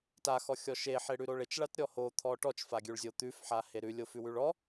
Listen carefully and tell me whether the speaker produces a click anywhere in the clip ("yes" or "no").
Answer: no